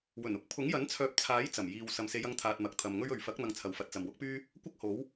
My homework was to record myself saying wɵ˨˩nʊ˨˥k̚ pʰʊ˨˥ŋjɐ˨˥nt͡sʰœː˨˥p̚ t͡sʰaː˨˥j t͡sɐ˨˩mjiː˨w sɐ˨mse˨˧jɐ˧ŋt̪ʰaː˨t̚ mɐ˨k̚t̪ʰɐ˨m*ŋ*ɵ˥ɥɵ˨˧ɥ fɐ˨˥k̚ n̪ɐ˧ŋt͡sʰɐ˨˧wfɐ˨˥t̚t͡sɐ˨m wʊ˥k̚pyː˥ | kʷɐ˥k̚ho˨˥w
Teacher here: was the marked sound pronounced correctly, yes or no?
yes